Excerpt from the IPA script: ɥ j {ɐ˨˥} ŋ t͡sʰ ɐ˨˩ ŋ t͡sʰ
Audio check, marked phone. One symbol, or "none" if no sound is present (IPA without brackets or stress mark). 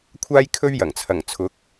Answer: ɐ˨˩